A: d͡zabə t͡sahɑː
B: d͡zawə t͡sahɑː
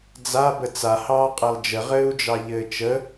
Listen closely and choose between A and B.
A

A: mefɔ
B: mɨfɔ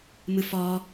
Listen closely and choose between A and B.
B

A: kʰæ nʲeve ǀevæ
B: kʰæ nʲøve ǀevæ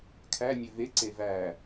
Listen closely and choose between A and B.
B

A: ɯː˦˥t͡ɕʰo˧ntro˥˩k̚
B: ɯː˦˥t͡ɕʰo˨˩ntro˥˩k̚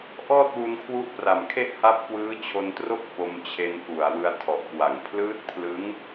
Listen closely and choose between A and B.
A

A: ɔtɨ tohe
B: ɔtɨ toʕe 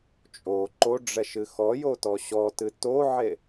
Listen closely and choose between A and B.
B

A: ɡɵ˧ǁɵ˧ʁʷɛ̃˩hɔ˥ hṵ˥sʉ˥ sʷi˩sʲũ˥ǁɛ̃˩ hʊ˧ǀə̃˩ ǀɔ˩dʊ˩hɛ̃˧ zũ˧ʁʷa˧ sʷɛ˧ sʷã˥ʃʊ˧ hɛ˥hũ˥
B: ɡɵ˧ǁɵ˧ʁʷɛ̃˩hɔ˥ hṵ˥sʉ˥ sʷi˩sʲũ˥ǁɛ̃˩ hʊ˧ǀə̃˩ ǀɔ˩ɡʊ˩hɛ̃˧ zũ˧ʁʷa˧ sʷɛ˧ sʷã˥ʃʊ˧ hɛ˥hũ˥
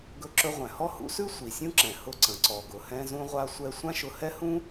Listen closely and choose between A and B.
B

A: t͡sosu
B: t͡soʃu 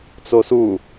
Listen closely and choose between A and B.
A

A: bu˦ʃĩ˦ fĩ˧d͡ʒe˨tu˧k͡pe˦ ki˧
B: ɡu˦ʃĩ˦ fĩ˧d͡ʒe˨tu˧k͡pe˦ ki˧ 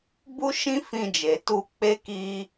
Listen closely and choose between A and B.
A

